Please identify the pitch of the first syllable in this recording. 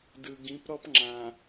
low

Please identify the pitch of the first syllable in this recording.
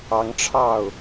rising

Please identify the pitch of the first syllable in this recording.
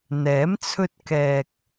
rising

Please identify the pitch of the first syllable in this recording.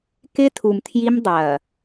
high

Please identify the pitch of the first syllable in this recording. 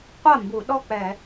falling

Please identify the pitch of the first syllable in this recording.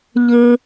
low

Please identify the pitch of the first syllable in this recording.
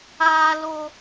high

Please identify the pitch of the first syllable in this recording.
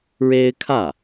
high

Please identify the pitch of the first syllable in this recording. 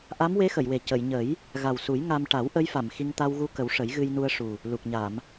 rising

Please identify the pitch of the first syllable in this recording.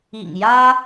low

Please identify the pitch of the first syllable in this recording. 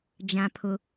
high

